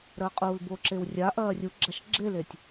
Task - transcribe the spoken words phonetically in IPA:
ɾ ɐː qʼ uː l b o ǁ e w rʲ a ʔ ɐː rʲ u ɡ͡ǁ a ʃ ɡ͡ǁ e l e tʲ

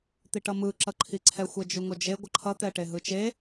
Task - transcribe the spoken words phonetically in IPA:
t̪ i ʈ ʌ m ɯ ǁ ʌ ǃʰ i ǀʰ ɛ xʷ ɛ d͡ʒ u ŋ o d͡ʒ e ɡʷ ʌ ǃʰ ʌ t̪ ɛ ʈ e ɦ ɯ t͡ʃ e

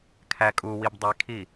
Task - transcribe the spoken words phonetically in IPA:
kʰ æ kʼ u w i b dˤ e kʰ i

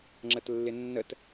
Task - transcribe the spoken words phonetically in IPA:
ŋ͡ǁ ə t lː ɪ nː ə t

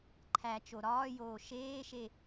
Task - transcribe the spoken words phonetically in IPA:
ǃʰ æ t͡ʃ o ɾ ɒː j oː ʃ eː ʃ e

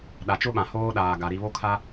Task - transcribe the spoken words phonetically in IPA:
ɗ a˨ t͡ʃ ʊ˦ ɓ ã˨ h oː˦ ɗ aː˨ ɡ a˨ ɾ i˨ β o˦ kʰ a˦

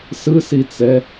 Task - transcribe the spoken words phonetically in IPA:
s ɯ s i t͡s ɛ

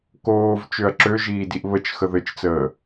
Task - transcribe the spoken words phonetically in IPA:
k oː v t͡ʃ ø ɐ̯ ǁ ø ʒ iː d i ʔ β ə t͡ʃ x ə ð ɘ t͡ʃ t͡s əː

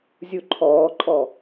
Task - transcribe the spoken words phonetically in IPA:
zʲ u ǃʰ ɔː ǃʼ ɔ

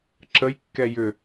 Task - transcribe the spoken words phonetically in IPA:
ǁ ə j kː ɛ j ʏ

